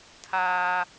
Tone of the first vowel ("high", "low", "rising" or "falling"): high